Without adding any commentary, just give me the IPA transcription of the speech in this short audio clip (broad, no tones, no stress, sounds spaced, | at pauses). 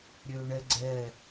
ɾʲ ø ɳ ɛ ɡ͡ǀ ɛ